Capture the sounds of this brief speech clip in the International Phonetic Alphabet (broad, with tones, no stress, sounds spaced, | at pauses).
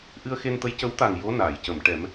ʔ ɨ˧ ə̯ x e˧ n t̪ ə˧˥ j c ə˧˥ w t̪ a˨˩ ŋ j o˧˥ n aː˨˩˨ j c ə˨˩˨ m ʈ ɛ˨˩˦ m